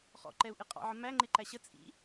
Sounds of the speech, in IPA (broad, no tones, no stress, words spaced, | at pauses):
χɔ̰ǃɛu̯ʔɪ qʼɑ̰ʕə mæŋ͡ǃɪǃæ ɕə t͡sʼḭ